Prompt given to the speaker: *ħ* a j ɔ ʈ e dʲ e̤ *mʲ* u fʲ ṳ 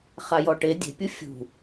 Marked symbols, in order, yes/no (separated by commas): no, no